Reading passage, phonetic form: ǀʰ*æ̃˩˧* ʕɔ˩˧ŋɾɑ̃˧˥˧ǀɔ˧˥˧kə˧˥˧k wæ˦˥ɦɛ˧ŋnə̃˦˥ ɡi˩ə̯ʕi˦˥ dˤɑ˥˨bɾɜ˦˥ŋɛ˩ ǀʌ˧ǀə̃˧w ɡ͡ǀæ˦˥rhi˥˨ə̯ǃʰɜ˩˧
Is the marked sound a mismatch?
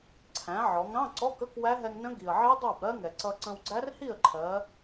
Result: no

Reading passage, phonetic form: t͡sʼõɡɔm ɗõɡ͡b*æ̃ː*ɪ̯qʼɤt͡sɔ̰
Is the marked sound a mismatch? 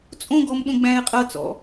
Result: no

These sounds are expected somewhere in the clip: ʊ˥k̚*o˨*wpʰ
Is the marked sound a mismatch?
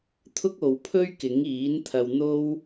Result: no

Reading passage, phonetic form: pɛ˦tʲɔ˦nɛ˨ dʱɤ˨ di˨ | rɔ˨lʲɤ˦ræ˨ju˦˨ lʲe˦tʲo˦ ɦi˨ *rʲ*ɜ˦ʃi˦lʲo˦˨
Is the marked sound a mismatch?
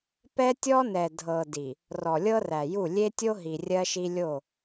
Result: no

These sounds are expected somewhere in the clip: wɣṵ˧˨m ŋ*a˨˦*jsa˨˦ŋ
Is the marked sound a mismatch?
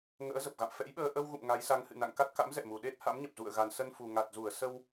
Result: no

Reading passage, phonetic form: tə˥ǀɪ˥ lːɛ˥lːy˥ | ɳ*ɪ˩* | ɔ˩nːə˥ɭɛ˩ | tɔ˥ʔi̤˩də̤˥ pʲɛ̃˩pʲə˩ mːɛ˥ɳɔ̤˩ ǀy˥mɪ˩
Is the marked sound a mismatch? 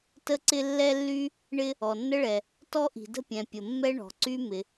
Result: yes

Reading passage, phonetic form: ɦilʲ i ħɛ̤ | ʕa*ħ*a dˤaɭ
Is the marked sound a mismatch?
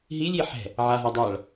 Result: yes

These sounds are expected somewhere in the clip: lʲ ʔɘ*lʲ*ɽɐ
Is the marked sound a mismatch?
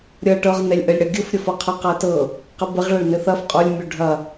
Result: no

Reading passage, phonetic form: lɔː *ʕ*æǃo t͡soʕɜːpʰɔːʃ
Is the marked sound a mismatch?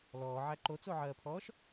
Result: no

